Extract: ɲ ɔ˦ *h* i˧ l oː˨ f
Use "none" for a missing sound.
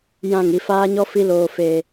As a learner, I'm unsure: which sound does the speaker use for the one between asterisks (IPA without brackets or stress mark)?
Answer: f